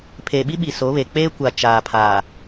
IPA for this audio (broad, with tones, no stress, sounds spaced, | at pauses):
pʰ eː˨ ɓ i˦ ɓ i˨ s o˨˦ β e˨ k͡p eː˦ kʷ a˨ t͡ʃ aː˨ pʰ a˨